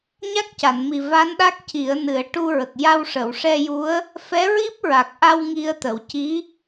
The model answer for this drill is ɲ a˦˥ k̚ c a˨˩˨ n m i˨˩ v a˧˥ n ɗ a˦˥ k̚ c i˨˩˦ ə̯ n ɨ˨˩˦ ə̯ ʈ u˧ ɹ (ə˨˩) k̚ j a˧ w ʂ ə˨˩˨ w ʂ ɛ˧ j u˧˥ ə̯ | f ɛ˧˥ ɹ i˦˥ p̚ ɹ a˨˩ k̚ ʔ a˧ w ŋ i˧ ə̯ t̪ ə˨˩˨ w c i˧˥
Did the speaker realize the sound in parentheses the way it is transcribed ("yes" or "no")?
yes